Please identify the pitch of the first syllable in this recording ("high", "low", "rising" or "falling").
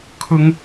high